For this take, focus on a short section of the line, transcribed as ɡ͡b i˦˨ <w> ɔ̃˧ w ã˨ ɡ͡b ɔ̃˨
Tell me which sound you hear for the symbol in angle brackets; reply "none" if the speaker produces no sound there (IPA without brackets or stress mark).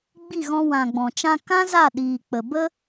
ɣ